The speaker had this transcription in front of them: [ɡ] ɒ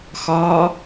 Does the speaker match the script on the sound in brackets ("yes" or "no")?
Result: no